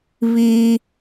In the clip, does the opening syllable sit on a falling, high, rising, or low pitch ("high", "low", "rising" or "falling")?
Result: high